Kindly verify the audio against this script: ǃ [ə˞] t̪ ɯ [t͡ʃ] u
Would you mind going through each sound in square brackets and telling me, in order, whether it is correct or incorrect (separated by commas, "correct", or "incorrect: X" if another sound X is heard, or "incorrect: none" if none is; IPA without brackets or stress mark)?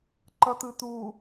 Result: incorrect: ʌ, incorrect: t̪